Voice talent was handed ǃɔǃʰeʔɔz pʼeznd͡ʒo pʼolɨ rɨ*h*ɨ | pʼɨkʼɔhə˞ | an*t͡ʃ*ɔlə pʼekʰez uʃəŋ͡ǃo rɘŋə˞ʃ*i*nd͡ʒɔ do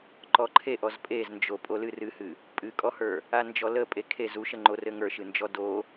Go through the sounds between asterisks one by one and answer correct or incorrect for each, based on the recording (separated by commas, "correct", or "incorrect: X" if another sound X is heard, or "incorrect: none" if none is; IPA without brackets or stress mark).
correct, incorrect: d͡ʒ, incorrect: ɨ